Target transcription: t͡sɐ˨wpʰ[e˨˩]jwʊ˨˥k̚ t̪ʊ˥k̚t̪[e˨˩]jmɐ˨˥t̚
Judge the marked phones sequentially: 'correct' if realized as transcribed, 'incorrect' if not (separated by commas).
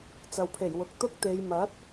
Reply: correct, incorrect